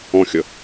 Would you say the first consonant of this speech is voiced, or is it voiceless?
voiceless